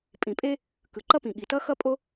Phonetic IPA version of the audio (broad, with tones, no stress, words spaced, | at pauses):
pʼĩ˩pʼe˥ | kɯ˩ǃʌ˥pĩ˩ ɠi˩tʌ˥xʌ˥pʼo˥